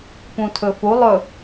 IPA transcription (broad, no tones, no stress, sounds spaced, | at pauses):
p ũ tʰ ɵ f u lˠ ɵ